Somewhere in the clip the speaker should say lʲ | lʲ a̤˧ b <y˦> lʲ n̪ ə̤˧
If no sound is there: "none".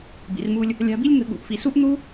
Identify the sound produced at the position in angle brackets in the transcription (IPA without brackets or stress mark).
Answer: i˦